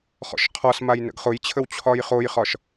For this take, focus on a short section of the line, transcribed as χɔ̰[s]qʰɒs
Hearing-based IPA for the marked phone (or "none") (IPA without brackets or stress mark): ʃ